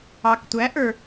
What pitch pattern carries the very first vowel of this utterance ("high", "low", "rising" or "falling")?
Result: low